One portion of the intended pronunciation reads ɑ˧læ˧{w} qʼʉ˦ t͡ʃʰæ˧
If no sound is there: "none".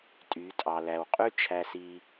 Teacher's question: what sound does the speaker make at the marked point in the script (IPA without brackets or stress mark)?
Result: w